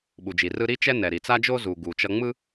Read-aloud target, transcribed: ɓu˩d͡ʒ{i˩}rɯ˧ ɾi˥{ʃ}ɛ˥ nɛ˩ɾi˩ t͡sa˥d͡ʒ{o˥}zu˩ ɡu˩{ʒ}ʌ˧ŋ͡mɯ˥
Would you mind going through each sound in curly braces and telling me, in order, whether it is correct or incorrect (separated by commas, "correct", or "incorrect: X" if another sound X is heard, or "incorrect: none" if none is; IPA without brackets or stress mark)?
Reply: correct, incorrect: t͡ʃ, correct, incorrect: t͡ʃ